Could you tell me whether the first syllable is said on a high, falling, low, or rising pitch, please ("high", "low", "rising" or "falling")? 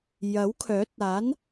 rising